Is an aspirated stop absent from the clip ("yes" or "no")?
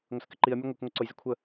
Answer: no